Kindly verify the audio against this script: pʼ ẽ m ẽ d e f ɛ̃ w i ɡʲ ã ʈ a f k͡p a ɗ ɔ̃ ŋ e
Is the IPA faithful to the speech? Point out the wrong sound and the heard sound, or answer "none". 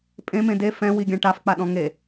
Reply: none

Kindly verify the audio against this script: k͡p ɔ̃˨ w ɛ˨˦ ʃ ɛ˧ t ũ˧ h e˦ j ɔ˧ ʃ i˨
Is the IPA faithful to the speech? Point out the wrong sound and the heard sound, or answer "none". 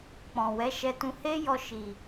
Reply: none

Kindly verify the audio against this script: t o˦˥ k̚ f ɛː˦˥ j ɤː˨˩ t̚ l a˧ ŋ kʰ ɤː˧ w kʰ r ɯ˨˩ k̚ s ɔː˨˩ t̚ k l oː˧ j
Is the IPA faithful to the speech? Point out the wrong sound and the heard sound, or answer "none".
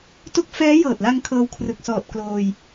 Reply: none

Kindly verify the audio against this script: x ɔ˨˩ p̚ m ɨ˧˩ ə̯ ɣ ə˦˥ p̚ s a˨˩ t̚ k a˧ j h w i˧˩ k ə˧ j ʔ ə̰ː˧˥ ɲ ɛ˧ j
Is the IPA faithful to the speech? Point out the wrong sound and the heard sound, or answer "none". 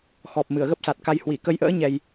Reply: none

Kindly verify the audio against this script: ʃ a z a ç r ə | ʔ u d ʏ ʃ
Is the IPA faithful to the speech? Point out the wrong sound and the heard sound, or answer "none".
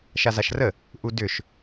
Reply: ç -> ʃ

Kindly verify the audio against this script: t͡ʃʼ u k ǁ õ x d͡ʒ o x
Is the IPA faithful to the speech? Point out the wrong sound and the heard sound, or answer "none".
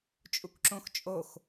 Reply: d͡ʒ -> t͡ʃʼ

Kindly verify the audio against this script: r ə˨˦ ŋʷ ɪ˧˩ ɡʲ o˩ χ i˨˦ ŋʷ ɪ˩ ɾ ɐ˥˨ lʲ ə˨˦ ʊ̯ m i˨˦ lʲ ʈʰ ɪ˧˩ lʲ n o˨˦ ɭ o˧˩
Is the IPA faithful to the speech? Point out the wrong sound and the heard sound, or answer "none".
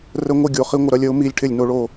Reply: none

